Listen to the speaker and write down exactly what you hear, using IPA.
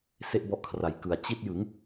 s e˥˩ ʔ b ɔ˦˥ ʔ kʰ r a˩˦ j k ɯ˨˩ a̯ t͡ɕ i˦˥ t̚ j ɯ˩˦ ŋ

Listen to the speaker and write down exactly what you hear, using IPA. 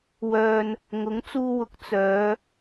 w œː˧ n | ŋ ʊ˨˥ ŋ t͡s uː˧ w ʊ˨˥ k̚ t͡s œː˨˧

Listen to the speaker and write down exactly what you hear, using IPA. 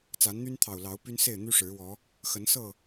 t͡s a˨˦ n n̪ y˦ n t̪ʰ ɑ˨˩ ʊ̯ l ɑ˨˦ ʊ̯ p y˦ n s e˥˨ ɪ̯ n̪ y˦ ʂ ɻ̩˨˦ w ɔ˨˦ | x ə˨˦ n s ɤ˥˨

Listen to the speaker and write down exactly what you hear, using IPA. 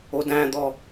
o d æ̃ d̪ ɔ

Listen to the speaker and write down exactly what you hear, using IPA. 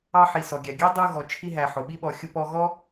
ɑ˧ ħ i˩ s ɔ˩ ɡʲ æ˩ ɡʲ æ˥ dˤ u˧ ɣ ɔ˩ t͡ʃʰ i˧ ɦ æ˩ ħ ʊ˩ ɓ i˧ ɓ ɔ˩ xʲ ʊ˧ p ɔ˧ ɣ ɔ˥

